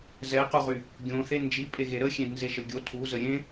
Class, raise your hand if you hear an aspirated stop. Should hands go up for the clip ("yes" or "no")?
yes